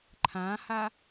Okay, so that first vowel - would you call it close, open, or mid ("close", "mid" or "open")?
open